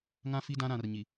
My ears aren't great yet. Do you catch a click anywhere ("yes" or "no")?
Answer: no